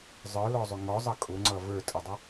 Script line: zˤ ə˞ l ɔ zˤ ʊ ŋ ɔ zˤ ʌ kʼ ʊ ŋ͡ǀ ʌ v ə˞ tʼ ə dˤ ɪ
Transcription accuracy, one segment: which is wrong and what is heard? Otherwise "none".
none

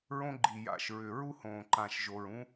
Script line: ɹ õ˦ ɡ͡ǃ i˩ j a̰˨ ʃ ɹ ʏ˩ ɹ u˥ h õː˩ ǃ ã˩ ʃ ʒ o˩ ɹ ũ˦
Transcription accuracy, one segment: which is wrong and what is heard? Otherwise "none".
none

